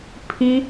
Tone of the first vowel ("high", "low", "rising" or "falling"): high